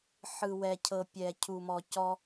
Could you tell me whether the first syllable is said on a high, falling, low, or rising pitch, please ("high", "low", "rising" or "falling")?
low